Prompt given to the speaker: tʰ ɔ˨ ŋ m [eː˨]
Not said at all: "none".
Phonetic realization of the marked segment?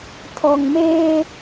eː˦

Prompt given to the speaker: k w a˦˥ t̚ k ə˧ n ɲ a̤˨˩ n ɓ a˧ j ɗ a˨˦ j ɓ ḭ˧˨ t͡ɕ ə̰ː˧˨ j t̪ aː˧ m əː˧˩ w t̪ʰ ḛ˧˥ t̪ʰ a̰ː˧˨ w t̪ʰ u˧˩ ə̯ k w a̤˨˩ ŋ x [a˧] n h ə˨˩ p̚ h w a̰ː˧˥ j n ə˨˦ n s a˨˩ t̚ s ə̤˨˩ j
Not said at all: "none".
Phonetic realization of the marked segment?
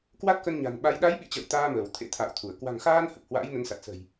aː˧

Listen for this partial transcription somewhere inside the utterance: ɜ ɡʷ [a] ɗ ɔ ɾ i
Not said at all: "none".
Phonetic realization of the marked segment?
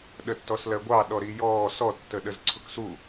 ɑ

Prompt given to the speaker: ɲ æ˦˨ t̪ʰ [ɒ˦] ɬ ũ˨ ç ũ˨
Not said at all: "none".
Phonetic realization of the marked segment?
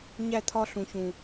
ɒ˦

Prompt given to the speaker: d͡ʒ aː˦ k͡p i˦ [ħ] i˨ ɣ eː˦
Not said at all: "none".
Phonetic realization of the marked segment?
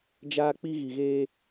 ɣ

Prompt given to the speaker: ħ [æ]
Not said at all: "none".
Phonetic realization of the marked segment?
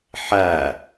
æ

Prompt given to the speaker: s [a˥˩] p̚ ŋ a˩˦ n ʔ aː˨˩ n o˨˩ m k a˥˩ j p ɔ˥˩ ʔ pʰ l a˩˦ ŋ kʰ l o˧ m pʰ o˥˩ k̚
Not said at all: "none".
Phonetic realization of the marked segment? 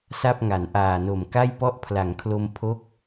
a˥˩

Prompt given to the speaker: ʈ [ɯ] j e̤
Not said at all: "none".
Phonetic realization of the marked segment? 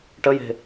ə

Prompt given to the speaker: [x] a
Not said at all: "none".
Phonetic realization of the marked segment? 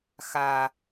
x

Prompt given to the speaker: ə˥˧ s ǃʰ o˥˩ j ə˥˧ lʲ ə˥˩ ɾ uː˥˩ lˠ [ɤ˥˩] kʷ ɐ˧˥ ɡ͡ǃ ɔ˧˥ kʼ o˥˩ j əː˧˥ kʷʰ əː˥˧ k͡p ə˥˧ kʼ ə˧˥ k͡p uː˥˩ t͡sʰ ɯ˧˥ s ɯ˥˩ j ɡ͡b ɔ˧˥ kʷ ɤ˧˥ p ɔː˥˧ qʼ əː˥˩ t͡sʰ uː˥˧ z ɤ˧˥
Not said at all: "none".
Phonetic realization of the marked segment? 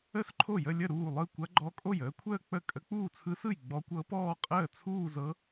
ɯ˥˩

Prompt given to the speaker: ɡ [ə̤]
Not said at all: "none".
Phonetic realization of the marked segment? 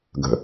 ə̤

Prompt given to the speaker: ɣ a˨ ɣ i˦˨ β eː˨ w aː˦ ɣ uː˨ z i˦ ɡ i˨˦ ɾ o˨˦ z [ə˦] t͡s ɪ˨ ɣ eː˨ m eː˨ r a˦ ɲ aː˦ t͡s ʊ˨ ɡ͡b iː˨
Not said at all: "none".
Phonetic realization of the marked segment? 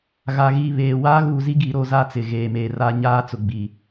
a˦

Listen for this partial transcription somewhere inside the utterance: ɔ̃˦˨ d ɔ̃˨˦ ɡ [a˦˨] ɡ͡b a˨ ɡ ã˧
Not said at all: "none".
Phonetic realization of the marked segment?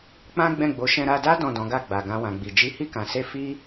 a˦˨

